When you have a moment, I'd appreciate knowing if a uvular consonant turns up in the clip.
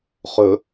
yes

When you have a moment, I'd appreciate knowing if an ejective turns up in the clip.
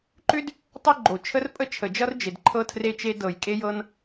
yes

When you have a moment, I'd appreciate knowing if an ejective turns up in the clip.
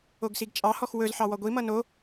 yes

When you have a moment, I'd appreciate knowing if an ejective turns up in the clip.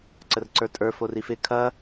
yes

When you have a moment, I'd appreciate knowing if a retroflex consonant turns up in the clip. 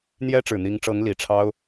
yes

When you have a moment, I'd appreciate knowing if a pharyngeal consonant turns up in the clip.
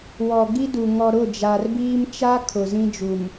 no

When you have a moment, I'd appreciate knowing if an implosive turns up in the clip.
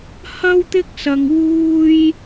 no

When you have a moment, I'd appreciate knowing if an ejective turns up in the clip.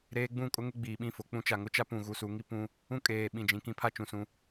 yes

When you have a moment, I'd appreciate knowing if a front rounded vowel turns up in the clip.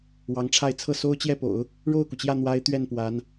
no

